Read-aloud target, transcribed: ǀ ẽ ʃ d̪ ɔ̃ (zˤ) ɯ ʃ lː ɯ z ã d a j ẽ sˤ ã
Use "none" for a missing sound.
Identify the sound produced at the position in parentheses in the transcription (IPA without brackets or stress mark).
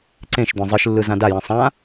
zˤ